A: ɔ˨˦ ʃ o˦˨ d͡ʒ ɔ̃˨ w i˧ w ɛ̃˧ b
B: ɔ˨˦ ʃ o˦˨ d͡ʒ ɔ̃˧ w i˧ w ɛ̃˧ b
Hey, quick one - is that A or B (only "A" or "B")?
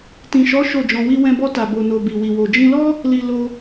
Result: B